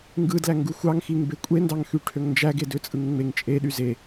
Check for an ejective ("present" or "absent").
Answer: present